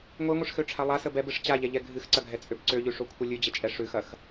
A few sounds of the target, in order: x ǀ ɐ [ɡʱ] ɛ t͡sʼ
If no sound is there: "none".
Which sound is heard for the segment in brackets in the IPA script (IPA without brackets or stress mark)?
ɡʱ